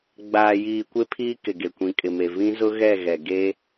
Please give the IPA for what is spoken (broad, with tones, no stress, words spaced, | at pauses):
ɡ͡baː˨jiː˨ kʷe˦pʰiː˦kɪ˨ ɡe˨kʷĩ˨kʼɪ˨me˨ vĩ˦zʊ˦ ɣɛ˦˨ɣɛ˨ ɡe˦